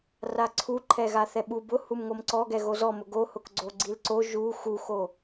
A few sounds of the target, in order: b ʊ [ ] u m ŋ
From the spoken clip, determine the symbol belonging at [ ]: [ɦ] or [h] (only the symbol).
h